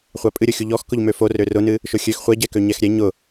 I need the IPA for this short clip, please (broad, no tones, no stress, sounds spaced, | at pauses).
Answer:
χʷ a pʼ ɨ ɾʲ ʊ xʲ u ʎ ɔ x k ʊ ʎ m ø f o r ø r ʊ n ɨ | ʃ ʊ xʲ ø x χʷ ɛ ɟ ɛ k ø ɲ ɛ x ɾʲ ɛ ɲ ʊ